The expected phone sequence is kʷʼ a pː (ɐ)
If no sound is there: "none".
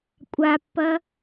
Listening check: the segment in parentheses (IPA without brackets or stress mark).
ɐ